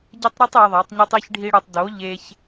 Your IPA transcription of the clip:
ɟ e˦ tˤ ɾ u˦ tˤ i˧ ðˤ æ˨˦ tˤ ɲ o˦ tˤ i˧ ç ɖʱ i˧ ɽ u˨ tˤ d o˨˦ ʎ e˧ ç

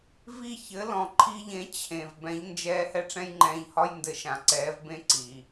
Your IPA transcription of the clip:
v i˥˩ ç ɘ˩˥ l ɔ̃˩ ǃʰ i˧ ʎ ẽ˩˥ t͡ɕʰ ẽ˩ v b ɛ̃˩˥ ʎ n d͡ʒ ɛː˧ h ɛ˥ ʈ͡ʂ ɛ̃˥ j ŋ͡ǃ ɛ̃ː˧ ʎ h ɒ˥ j n d ɘ˧ ʃ ã˩ ǀ ɛː˩˥ v b ẽ˥ ǀ i˩

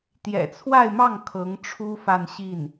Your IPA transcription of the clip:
t̪ j ɛ̰˨˩ t͡sʰ w a˥˧ ɪ̯ m ɑ˥˩ ŋ kʰ ɤ˧˥ ŋ ʈ͡ʂʰ u˥ f a˥˧ n ɕ i˥˩ n

